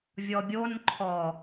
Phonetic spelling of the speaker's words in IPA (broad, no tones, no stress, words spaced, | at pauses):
vʲɔbʲon ǃʰɔ